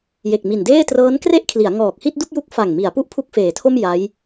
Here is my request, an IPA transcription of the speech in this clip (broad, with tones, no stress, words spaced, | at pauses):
je˨˩k̚mi˨˩ndeː˥˩ trɤː˦˥nkre˥˩ʔkʰli˩˦a̯ ŋɔː˨˩k̚hi˥˩t̚du˥˩k̚ju˦˥k̚ fa˨˩ŋmi˩˦a̯ pu˥˩ʔpʰu˥˩k̚feː˩˦tʰo˥˩m ja˦˥j